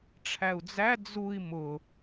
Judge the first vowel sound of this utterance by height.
low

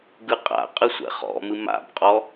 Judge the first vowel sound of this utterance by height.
high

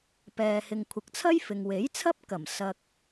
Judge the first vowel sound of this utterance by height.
mid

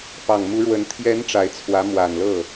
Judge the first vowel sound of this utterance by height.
low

